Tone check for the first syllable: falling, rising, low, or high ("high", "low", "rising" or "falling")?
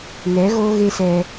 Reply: rising